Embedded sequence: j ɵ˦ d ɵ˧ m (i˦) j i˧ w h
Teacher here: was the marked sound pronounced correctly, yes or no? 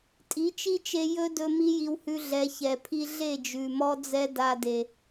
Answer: yes